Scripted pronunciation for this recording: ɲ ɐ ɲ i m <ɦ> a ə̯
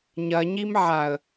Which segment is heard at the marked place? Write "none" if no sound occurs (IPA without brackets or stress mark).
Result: ʕ